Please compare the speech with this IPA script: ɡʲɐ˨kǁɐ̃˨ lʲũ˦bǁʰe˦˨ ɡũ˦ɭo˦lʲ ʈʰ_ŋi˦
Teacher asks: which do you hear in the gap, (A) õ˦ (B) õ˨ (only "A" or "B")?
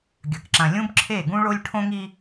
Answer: A